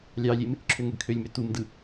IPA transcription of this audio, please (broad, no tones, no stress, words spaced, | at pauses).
lʲɑlʲem | ǁʰøŋøɡkʰølʲmø tumdɯ